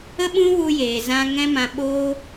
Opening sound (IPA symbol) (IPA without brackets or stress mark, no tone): ə